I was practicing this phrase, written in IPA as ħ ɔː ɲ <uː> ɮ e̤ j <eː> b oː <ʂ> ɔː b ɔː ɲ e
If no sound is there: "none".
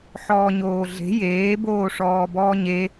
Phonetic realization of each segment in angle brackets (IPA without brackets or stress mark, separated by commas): oː, eː, ʂ